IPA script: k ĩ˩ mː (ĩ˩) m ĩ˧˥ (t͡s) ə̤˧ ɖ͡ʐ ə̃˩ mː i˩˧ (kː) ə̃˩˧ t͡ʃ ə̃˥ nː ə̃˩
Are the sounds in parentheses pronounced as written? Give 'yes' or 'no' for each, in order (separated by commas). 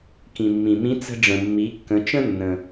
yes, yes, yes